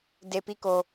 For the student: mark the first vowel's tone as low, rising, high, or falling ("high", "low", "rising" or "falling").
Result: low